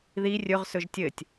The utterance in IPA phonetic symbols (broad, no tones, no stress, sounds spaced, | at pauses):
ð i rʲ ɵ ʁ s ɵ ʒ tʲ ɘ tʲ